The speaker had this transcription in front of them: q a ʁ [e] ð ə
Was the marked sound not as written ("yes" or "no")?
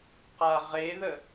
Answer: no